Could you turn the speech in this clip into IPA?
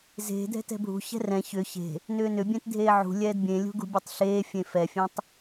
z e̤ dʱ ɛ̤ t ɛ̤ bʱ ṳ ç ɛ̤ r ɛ̃ ç ʏ ç e̤ | n ʏː n ʏ bʲ ẽ t dʱ eː ʕ ṳ lʲ ɛː d bʲ ẽ lʲ ṳ ɡ ṳ bʲ e tˤ ɬ eː fʲ ẽ f ɛ fʲ ẽ tˤ

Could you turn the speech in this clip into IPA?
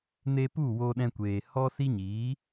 n e˧ p u˦˨ w o˧ ɗ ɛ̃˧ kʷ eː˨ h ɔ˦ s i˦ ɲ iː˨˦

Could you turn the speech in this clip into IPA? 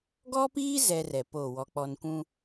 ɡ ɔ˦ p iː˦ z ɛ˦ r ɛ˨ p oː˦˨ w ɔ˦ k͡p ɔ˦ n kʷ ũ˦

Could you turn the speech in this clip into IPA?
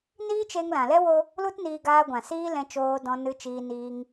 n iː˦ t͡ʃ e˧ ŋ l ã˨ l ɛ˦ w o˦ | l u˦ t n iː˧ ɡ aː˧ ɡʷ ã˨ s iː˦ l ɛ̃˧ t͡ʃ oː˧ d ɔ̃˧ n ɨ˧ t͡ʃ iː˧ n iː˧ ŋ

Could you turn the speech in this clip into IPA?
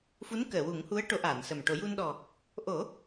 f u˧˥ n k əː˨˩˨ w u˨˩˦ ŋ h u˧˥ ə̯ ʈ o˧˥ ʔ aː˨˩˨ n s ə˨˩ m ʈ o˨˩˦ j u˧ n ɗ ɔ˨˩ | ʔ o˨˩˦

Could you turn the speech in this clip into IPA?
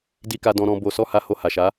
d i˧ k a˧ d ɔ̃˧ ɾ ɔ̃˧ b o˧ s ɔ˦ h a˧ h o˧ h a˨ ʃ a˨˦

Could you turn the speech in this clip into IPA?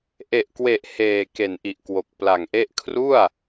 ʔ e˨˩ ʔ k w e˨˩ ʔ h eː˨˩ k e˨˩ n ʔ i˨˩ ʔ k w o˨˩ k̚ p l a˨˩ ŋ ʔ e˦˥ ʔ kʰ r u˥˩ a̯

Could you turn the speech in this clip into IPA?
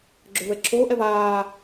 ɡ͡ǁ œ v ɛ ǁʰ oː ʔ ɛ v aː

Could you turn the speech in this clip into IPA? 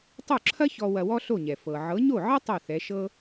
tˤ o˥˩ ǁʰ ɐ˥ ç ɔ˧ w ɐ˧ w ɔ˥ ɬ o˥˩ ɲ ɛ˩ f ɤ˩ ʕ ɤ˩˥ ɲ o˥˩ ʕ ɐ˥ tˤ o˥˩ θ ɛ˩˥ ʃ ɤ˥

